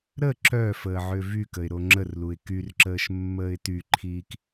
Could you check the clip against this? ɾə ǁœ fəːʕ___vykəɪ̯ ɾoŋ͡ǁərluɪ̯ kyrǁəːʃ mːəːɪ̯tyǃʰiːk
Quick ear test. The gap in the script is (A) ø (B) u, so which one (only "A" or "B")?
A